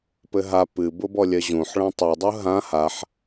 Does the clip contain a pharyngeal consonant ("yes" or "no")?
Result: yes